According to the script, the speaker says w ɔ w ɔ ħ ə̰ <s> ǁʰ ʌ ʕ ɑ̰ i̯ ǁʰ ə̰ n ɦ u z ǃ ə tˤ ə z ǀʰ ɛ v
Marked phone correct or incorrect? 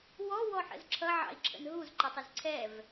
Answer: incorrect